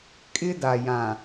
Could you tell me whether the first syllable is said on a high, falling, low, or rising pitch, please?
high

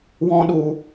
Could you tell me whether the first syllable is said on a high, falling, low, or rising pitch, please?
high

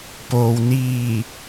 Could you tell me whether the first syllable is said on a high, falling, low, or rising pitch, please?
low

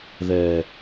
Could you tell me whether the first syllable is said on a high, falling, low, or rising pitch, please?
high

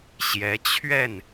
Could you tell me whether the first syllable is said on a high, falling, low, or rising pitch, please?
rising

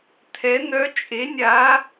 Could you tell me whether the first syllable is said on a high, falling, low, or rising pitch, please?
rising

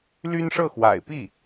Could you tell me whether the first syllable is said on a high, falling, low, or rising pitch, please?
high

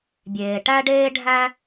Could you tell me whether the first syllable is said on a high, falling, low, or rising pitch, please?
low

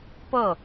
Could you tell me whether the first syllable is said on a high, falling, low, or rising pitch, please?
falling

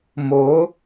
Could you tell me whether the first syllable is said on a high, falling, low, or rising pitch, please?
rising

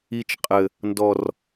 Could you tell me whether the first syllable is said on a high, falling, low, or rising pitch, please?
high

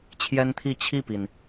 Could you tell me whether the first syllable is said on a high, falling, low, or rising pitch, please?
high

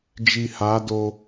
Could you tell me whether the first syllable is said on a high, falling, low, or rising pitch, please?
low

